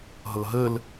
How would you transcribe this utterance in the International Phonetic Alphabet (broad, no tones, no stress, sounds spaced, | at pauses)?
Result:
ɦ ɤ ɦ ə l